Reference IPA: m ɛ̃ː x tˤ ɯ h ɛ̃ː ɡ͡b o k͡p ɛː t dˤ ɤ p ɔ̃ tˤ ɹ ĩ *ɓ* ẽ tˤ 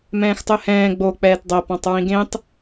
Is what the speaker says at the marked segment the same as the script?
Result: no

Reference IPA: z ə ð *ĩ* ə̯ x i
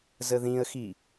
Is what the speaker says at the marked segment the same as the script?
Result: yes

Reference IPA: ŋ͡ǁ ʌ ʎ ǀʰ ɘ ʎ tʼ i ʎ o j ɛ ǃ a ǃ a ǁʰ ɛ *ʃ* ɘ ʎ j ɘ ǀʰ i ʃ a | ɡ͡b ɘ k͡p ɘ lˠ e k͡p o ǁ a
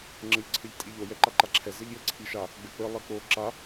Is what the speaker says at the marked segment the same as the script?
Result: no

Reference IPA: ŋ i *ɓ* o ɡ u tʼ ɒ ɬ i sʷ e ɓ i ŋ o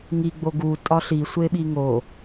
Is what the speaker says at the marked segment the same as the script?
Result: no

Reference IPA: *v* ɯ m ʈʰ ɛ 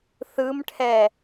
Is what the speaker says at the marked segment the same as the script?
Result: no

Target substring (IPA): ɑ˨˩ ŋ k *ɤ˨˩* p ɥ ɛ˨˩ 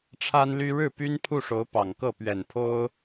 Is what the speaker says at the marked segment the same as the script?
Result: no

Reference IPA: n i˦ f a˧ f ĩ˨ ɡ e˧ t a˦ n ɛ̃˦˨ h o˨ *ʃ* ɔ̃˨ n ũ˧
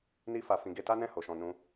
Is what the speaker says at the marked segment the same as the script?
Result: yes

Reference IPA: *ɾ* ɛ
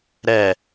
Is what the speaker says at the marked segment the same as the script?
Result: yes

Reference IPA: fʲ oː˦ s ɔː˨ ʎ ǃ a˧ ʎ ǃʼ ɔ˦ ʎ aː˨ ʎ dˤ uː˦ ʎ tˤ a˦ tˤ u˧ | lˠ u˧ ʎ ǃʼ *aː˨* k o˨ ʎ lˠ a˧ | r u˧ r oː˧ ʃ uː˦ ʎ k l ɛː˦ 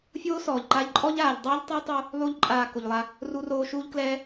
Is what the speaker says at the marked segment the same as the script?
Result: yes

